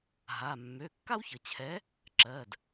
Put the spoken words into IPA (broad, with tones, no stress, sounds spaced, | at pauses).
ɦ a˩˧˩ mː ø˩˧˩ kː a˥ w ç ə˩ t͡ɕʰ ɛ˨˥ | ǁ ɜ˩˧˩ d